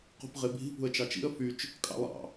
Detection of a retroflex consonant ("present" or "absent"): absent